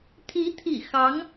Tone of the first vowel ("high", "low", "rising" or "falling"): rising